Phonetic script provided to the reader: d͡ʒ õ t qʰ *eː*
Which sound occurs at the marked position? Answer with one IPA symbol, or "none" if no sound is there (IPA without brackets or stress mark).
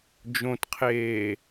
eː